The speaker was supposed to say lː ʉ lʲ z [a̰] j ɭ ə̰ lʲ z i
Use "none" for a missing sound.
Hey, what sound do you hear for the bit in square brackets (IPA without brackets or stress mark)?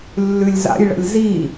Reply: a̰